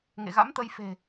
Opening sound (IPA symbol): ŋ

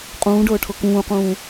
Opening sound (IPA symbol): qʼ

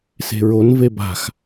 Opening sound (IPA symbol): s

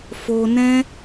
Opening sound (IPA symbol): f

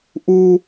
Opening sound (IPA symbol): ʔ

